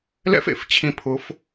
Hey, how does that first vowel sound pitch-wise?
high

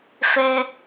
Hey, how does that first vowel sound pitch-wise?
high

